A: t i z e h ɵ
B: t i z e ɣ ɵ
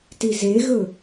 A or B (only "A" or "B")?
B